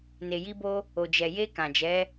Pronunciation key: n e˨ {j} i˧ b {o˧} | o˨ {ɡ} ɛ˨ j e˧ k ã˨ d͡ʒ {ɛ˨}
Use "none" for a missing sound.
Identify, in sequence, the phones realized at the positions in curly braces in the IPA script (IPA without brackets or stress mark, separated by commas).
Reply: j, o˧, d͡ʒ, ɛ˨˦